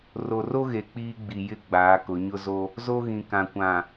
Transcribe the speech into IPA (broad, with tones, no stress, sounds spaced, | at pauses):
r o˨ r o˦ ɣ e˨ k͡p iː˦ ɡ͡b i˨ j ɪ˦ ɡ͡b aː˨˦ k ʊ˨˦ ɲ ʊ˦ z o˦ | z o˦ ɣ ĩ˨ k ã˨ kʷ ã˨